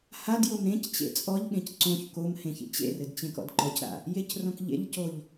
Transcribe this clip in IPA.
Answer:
h a d j o m ɾ ẽ c t͡ɕ ḛ t͡sʼ ɔ ʎ ɠ ẽ c ǀ õ ç k o m h ẽ ç ḭ t͡ɕ ḛ r ɘ d t͡ɕ ẽ k ɔ̰ d ǃ ɔ c ɾ a̰ | j e c r õ k ʎ ḛ ʎ c o ʎ

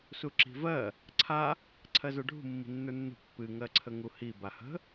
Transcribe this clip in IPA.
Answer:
s u ǁ i̤ v ɜ | ǀʰ a | ǀʰ ɜ z ə˞ ɖʱ ṳ mː i̤ nː ə˞ nː ṳ pː ɨ ŋ ɜ ǀʰ ə ŋ u h i b a h ə̤

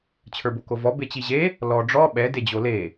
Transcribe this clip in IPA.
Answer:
t͡ɕʰ ə˞ b o k o v ɔ b e t͡ɕ i ʑ e | l ɔ ɖ͡ʐ ɔ ɓ ɛ d e d͡ʑ o l e

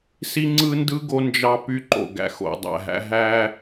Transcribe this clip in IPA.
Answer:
s i˦ ŋ͡ǀ ɯ˦ n d ɯ˦ ɡ o˦ n d͡ʒ ɑ˦ p y˦ ǃ o̰˨ ɡ æ̰˨ x o̰˨ dˤ æ̰˨ ɦ æ̰˦ ɦ æ˦

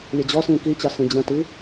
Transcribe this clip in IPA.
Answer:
lʲ ɘ d͡ʑ ɔ s ĩ k i t͡ɕ ɑ s ĩ d͡ʑ ə̃ t i

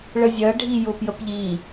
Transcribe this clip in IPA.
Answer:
ɭ ə zʲ ɜ ɖʱ i j ʊ p j ə p ʎ i

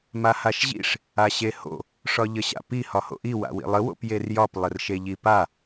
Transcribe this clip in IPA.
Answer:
m a h a ʃ ʑ ḭ ʂ | a ɕ e h o̰ | ʂ ɒ ʎ ə ɕ a̰ p i h ɒ h o̰ ʔ i w a̰ w ḭ lˠ ə w o̰ p j e r j ɒ p lˠ ə r ʃ e ʎ i p a

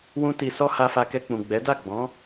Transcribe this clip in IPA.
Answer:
w ũ˦ t i˧ s ɔ˦ h a˧ f a˧ k ɛ˧ k͡p ũ˨ ɡ͡b ɛ˨˦ d a˦˨ ɡ͡b ɔ̃˨˦

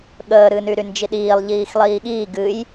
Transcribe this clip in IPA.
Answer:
ɠ əː ɾ ɨ n y ɾ y n d͡ʒ i ɗ iː lˠ ʎ iː x lˠ iː ɠ iː ɡ ɨ j

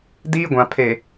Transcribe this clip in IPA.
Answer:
d iː˦ ɡʷ ã˨ pʰ e˨

